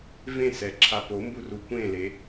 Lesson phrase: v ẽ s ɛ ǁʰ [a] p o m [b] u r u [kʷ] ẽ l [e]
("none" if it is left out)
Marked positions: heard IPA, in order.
a, b, kʷ, e

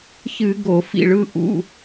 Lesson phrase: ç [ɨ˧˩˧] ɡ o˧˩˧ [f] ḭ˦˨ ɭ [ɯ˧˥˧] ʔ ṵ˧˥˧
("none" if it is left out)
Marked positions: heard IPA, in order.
ɨ˧˩˧, f, ɯ˧˥˧

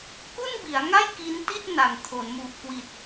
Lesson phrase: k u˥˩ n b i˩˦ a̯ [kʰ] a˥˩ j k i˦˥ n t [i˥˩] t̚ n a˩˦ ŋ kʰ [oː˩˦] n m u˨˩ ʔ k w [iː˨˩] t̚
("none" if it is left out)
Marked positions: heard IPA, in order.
ŋ, i˥˩, o˩˦, i˨˩

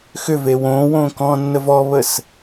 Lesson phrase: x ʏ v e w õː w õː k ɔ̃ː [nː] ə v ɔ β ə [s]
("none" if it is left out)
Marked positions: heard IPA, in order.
nː, s

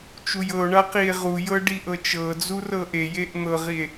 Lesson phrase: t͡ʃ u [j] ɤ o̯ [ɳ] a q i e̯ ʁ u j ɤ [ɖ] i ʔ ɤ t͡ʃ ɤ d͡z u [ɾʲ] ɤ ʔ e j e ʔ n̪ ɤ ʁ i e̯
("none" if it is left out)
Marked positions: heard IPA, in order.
j, ɳ, ɖ, r

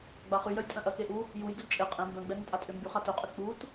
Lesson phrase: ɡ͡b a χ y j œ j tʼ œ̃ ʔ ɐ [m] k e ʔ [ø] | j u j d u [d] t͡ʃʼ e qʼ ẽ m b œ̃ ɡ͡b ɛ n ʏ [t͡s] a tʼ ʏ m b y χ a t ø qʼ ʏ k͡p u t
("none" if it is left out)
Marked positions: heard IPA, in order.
none, u, d, tʼ

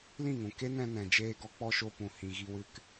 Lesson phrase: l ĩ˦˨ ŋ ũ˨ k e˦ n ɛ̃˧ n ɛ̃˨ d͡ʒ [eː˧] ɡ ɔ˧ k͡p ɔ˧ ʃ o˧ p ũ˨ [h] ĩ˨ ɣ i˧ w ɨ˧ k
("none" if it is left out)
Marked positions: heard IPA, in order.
eː˧, h

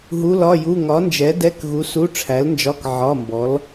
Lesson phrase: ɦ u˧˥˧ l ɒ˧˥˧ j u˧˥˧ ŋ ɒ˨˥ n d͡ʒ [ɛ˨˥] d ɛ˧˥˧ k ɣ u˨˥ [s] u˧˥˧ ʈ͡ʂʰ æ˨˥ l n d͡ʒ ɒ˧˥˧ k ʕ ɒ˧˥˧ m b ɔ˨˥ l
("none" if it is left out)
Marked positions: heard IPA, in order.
ɛ˨˥, s

